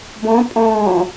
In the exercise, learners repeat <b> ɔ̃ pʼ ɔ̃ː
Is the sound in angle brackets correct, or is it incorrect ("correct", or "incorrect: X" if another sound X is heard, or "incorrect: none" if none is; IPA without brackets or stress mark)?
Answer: correct